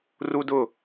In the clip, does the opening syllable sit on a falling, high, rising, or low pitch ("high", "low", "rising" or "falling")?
high